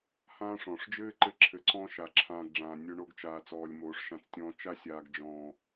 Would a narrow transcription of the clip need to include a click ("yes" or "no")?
yes